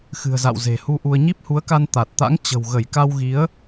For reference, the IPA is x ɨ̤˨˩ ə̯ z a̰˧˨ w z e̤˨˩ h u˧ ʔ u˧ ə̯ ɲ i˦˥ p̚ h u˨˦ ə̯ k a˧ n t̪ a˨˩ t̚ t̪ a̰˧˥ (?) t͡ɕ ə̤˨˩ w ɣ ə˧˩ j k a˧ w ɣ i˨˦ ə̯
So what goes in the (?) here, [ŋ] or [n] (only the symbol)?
ŋ